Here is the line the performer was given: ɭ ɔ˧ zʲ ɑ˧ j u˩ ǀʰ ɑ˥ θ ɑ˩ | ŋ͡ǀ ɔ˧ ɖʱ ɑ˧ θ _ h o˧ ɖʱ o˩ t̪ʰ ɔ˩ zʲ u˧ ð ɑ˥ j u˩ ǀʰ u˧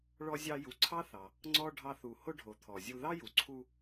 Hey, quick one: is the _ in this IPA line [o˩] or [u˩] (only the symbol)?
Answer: u˩